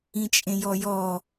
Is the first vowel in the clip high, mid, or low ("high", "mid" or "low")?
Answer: high